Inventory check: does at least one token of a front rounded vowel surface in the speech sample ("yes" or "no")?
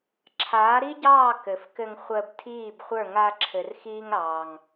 no